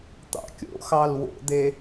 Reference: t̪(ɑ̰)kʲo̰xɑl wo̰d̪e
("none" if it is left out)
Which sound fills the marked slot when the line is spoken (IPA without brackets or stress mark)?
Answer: ɑ̰